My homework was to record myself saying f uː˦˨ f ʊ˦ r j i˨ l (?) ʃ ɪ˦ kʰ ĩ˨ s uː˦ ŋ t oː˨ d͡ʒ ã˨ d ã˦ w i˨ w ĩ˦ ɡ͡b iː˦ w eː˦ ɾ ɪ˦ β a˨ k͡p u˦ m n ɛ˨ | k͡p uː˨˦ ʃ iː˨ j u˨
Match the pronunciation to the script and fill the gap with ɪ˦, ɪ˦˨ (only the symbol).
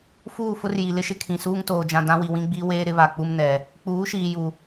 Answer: ɪ˦